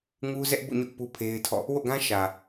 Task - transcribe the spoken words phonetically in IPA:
ŋ u˦ z ɛ˦ ʔ b ṵ˦˨ ɲ ʊ˦ ʔ p u˦ pʰ e˦ ɪ̯ tʰ ɔ̰˦˨ | w o̰˦˨ ɡ ã˦ ʃ ä˨

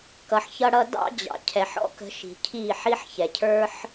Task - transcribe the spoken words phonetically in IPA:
k ʌ˧ ħ ç ʌ˦ ɽ ʌ˦ d ɑ̰˦ d͡ʑ ɑ̰˨ cʰ ɛ˨ ħ ɔ̰˦ k ə̤˧ ʃ i̤˨ cʰ i˦˨ ħ i˦ ħ ç ɛ˨ cʰ ə˞˦ ħ

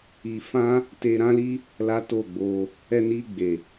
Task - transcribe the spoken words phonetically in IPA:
i˧ f ã˦ | t e˧ ɾ ã˦ l i˦ | l a˦ t o˦˨ ɡ͡b o˧ | ɛ˧ n i˧ ɡ͡b e˨

